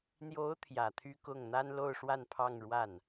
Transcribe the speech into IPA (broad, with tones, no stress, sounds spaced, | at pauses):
n̪ j o˧˥ ʊ̯ t̪ʰ j ä˨˩ t̪ʰ y˥ k ʊ˥˩ ŋ n̪ a˥ n l o˥˧ ʊ̯ ʂ w a˥˧ n pʰ ɑ˥˧ ŋ ɻ w a˥˩ n